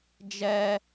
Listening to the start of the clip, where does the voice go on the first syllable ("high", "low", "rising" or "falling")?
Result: high